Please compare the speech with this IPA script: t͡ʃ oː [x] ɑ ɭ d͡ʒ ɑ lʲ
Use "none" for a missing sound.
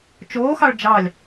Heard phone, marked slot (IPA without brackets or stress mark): x